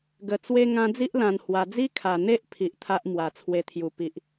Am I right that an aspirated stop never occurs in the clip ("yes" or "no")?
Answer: no